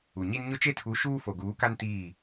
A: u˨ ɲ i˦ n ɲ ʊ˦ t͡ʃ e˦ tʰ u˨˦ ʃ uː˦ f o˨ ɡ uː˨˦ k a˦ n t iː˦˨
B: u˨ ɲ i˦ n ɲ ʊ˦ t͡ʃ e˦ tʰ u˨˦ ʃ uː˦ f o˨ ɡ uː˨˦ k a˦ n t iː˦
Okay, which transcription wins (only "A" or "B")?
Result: A